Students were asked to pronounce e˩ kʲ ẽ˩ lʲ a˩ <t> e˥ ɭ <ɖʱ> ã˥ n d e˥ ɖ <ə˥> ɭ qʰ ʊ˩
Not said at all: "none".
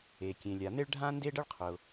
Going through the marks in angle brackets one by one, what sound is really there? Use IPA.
n̪, ɖʱ, ə˥

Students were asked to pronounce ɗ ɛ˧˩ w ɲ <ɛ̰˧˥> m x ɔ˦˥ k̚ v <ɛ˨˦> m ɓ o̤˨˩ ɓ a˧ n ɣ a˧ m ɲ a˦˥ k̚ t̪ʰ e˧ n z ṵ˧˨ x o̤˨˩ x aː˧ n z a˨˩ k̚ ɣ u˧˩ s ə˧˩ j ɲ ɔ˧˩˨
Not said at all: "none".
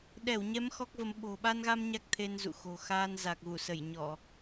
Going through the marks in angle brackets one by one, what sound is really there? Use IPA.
ɛ˨˦, ə˨˦

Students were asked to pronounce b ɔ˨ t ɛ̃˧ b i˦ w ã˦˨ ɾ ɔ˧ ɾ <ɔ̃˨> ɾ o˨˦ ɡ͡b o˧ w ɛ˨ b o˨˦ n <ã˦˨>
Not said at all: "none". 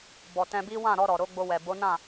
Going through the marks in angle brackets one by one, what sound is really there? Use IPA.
ɔ˨, ã˦˨

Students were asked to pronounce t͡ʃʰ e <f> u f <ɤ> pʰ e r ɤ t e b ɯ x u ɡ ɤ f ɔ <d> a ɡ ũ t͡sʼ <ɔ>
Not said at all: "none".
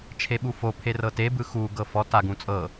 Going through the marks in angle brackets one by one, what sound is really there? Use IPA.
ɓ, o, t, ɤ

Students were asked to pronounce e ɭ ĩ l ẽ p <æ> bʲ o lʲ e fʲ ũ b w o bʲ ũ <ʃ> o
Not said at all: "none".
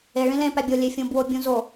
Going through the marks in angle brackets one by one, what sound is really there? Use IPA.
æ, z

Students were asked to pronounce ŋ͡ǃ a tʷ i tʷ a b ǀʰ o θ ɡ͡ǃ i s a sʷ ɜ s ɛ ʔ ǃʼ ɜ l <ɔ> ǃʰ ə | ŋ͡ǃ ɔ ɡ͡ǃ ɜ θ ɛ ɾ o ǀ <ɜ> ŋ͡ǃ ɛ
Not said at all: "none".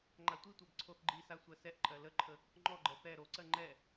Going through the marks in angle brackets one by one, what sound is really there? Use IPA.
ə, ɜ

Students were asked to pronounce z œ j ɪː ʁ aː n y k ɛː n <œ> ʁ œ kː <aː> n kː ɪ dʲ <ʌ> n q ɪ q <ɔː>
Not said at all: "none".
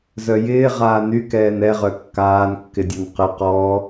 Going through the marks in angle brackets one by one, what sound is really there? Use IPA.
ɛ, aː, ɔ, ɔː

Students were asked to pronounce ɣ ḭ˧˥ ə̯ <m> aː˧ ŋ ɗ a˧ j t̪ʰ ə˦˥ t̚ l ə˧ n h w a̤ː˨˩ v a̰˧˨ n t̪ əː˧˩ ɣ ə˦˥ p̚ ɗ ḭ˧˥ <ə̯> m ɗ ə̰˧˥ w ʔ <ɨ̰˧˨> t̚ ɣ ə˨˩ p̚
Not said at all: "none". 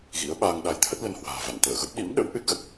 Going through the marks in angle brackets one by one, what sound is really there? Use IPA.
ɓ, none, ɨ˦˥

